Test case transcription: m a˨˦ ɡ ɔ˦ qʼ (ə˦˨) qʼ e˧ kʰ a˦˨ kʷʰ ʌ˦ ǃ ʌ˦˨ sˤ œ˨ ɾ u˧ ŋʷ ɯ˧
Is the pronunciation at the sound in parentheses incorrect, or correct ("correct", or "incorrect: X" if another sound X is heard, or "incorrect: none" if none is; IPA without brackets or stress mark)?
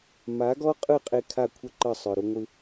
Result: incorrect: ɯ˦˨